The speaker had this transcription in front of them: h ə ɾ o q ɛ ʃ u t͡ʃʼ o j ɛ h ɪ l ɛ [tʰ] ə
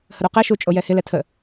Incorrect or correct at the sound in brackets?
correct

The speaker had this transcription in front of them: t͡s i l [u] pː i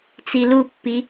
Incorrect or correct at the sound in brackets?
correct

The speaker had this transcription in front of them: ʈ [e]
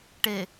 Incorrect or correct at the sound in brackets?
correct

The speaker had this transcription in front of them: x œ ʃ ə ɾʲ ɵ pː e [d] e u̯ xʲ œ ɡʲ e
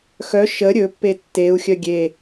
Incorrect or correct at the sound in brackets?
incorrect: tː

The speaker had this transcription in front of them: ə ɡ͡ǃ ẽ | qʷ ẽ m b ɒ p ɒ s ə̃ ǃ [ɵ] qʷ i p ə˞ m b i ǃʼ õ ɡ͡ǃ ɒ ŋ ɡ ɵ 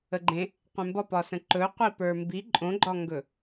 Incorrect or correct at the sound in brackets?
correct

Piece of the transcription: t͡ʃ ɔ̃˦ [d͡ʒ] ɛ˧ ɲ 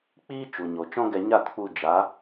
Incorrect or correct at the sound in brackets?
incorrect: ɡ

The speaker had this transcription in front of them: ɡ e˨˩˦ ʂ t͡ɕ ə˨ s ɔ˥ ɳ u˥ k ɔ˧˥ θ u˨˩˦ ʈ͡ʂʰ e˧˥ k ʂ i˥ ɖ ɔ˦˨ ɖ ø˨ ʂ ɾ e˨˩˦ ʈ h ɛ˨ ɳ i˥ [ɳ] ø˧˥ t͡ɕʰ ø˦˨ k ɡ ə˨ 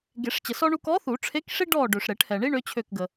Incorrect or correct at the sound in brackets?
correct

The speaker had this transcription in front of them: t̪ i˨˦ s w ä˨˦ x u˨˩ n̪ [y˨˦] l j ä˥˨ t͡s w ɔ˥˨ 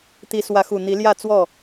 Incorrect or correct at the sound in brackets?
incorrect: i˨˦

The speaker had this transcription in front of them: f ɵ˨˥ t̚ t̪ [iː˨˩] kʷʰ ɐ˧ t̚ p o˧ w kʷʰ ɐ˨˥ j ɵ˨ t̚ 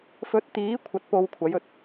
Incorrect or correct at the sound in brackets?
incorrect: iː˨˥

